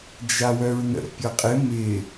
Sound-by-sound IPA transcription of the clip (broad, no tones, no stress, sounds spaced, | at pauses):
d͡ʒ a w œ ɹ n ə̰ pʲ ɤ qʼ ɪ m ɪ